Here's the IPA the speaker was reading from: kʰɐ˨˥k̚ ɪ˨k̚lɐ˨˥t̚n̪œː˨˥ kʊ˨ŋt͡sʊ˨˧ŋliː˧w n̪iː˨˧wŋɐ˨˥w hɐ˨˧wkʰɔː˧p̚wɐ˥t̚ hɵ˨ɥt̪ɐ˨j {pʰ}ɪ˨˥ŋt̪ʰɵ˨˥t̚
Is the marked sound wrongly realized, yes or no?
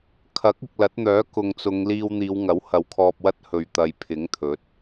no